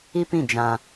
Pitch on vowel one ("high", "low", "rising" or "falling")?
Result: high